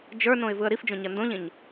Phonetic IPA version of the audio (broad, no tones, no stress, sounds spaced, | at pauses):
d͡ʒ ə˞ n õ ɪ̯ v ɯ ə̯ ɾ i f d͡ʒ õ ɲ ɐ n d õ ʎ ẽ ɲ